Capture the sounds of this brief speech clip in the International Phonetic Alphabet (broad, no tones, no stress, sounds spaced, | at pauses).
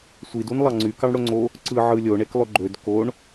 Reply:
sʷ i d u n lˠ ɑ ŋ͡ǀ y k ɑ ɳ ɽ o ŋ͡ǀ o | ǀ ɯ ʕ ɯ lʲ o ɳ e k lˠ ø ɡ͡ǃ ø d k o ɳ